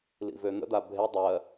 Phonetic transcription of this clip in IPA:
lḭvøn̪ə̰d̪a bʱe dˤɜ

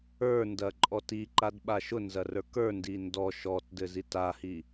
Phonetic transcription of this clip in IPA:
ə˞ndɐǃʼɔt iǃadɓa ʃʊnzɐrə˞ kə˞ndi ndɔ ʃɔtdɘzit ahi

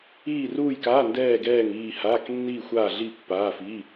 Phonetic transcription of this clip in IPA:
iː˥˧ruː˥˧jkaː˧˥˧ ndɛː˥˧ ɡɛː˥˧ŋ iː˥˧ haː˧˥˧knːiː˥˧xʷaː˥˧ɮi˥˧ pːaː˧˥˧ fiː˧˥˧

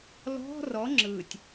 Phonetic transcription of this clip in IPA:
lɔ̤ rɔ ŋ͡ǁɯtʲ

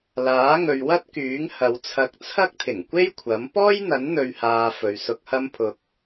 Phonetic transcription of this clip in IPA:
laː˨˥ŋɵ˨ɥwɐ˥t̚kyː˨˥ŋ hɐ˨˧wt͡sʰɐ˧k̚ t͡sʰɐ˥k̚t̪ʰɪ˨˩ŋkʷe˥j kʷʰɐ˨˥m pɔː˥jn̪ɐ˨˥nn̪ɵ˨ɥhaː˨ fɵ˨ɥsʊ˧k̚hɐ˥mpʰʊ˧k̚

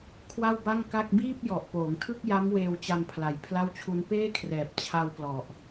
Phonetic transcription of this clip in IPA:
kʰwa˥˩wba˥˩ŋka˥˩k̚ biː˥˩p̚jɔ˨˩ʔ poː˩˦ŋtʰɯ˥˩k̚ja˦˥m weː˧wt͡ɕa˧mpʰla˨˩j pʰla˥˩wt͡ɕʰu˦˥n peː˥˩kʰrɛː˨˩p̚ t͡ɕʰa˧wplɔ˨˩ʔ

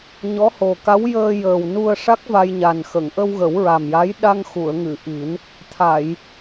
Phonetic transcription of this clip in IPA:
ɲɔ˧˥ho˨˩ka˧˥w jəː˧jəː˨˩w nu˧ə̯ʂa˦˥k̚ va˧jɲa˨˩nxə˨˩˨ŋ ʔə˧wɣə˨˩˦wɹa˨˩mja˧˥j ɗa˧ŋxu˨˩˨ə̯ŋɨ˨˩˨ ʔi˨˩˦n | t̪ʰa˨˩˨j

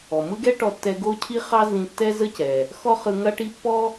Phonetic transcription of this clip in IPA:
ɔ˩ mɯ˥ɡɛ˥ ʈɔ˧tːɛ˧ ɡo˥cʰi˥ χɑ˥ zĩ˧tːɛ˥ zə˥cɛ˩ | xɔ˥χɯ˧ ŋɐ˥ʈi˥ pːɔ˥

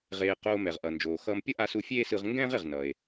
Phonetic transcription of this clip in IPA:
ʁeː˧ qoː˧ mɛ˩ʁʔʌ˩nd͡ʒoː˩xʌː˧m pʲʌ˥ʔa˧su˧ fʲeː˥sɯ˧ʁ ŋɡɛ̃ː˥ʁe˩ʁ nʌː˩e̯

